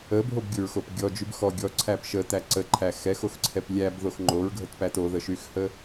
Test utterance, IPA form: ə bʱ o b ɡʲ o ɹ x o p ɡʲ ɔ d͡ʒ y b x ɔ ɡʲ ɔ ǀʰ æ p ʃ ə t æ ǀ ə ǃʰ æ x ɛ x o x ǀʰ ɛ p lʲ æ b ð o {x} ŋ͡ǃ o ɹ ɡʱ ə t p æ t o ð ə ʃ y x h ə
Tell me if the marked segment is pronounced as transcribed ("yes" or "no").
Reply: yes